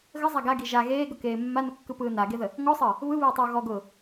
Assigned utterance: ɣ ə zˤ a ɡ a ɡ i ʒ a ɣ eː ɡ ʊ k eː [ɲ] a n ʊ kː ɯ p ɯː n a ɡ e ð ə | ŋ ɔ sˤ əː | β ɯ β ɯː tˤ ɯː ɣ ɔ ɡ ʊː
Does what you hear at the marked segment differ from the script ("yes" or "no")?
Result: yes